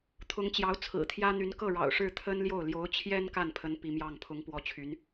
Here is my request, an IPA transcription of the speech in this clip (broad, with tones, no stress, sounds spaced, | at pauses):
t̪ʰ ʊ˧˥ ŋ t͡ɕ j ɑ˧˥ ʊ̯ t͡sʰ ɹ̩˨˩ t̪ʰ j ä˥ n̪ y˧˥ n k ɤ˥˩ ɻ ɑ̰˨˩ ʊ̯ ʂ ɻ̩˥˩ t̪ʰ ə˥ n l j o˥˩ ʊ̯ l j o˧˥ ʊ̯ t͡ɕʰ j ɛ˥ n k a˥˩ n pʰ ə˧˥ n p i˧˥ m j ɑ˥˩ ŋ pʰ ʊ˧˥ ŋ p w ɔ˧˥ t͡ɕʰ y˧˥ n